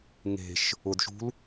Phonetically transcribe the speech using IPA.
ŋ e̤ ʃ | ʊ d ʃ ṳ l

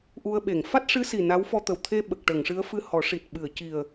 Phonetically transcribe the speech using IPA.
ʔ u˧ ə̯ ɓ e˨˩˨ ŋ f a˦˥ t̚ ʂ ɨ˧˥ s i˨˩ n a˧˥ w f ɔ˧ t̪ ə˨˩ w t̪ʰ e˧ ɓ ə˨˩ k̚ ʈ ə˨˩˨ ŋ ʂ ɨ˧˥ ə̯ f ɨ˧ h ɔ˨˩˦ ʂ i˨˩ t̚ ɓ ɨ˨˩˨ ə̯ c i˨˩ ə̯

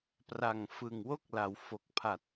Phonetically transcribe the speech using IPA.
p r a˨˩ ŋ f ɯ˨˩ ŋ w o˥˩ k̚ l a˩˦ w f o˨˩ k̚ pʰ a˨˩ t̚

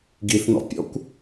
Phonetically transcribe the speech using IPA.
ɡ i θ n ɔ̰ pʲ ɔ̰ kʷ

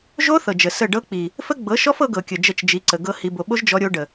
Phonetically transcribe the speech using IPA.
ʒ o˦ θ ɤ˨ d͡ʒ ə˨ s ə˦˨ ɖ ɤ˦ k͡p i˨ | f ə˦ ɡ͡b ɤ˨˦ ʃ ɔ˦ f ɤ˦ ɡ ɤ˨ kʲ ə˨ d͡ʒ ə˦˨ t͡ʃ d͡ʒ i˨˦ ǀ ə˨ ɡ ɤ˦ h i˨ b o˨ ɓ o˦ ʒ d͡ʒ ɔ˦ ɾʲ o˦ ɖ ə˨

